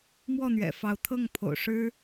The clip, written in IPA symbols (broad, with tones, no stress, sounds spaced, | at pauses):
m w ɔ˥˩ n̪ ɥ ɛ̰˨˩ f ɑ˧˥ ʊ̯ t̪ʰ ɤ˥˩ ŋ pʰ o̰˨˩ ʊ̯ ʂ ɻ̩˥